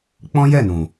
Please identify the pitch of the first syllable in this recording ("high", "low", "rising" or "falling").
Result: high